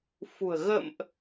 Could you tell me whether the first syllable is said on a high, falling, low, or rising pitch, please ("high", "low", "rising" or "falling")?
low